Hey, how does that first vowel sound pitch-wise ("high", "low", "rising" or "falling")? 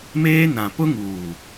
high